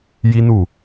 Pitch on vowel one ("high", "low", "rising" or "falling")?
high